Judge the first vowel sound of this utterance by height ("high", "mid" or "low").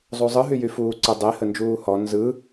high